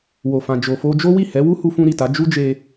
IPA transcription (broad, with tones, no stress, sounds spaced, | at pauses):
w o˨ f ã˨ d͡ʒ o˨ f o˧ d͡ʒ o˦ w i˦˨ h ɛ˨˦ w u˦ h u˧ f ũ˧ ɾ i˨ t a˨˦ d͡ʒ u˦ d͡ʒ e˧